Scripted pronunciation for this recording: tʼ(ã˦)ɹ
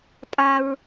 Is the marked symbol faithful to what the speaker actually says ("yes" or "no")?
no